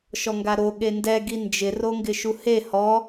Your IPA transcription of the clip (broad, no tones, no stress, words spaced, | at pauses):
ʃɔŋɡaɾo ɠendɛ ɡind͡ʒɪ roŋɡɪʃuhe hɔ